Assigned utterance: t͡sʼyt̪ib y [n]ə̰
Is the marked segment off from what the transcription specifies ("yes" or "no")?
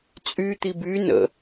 no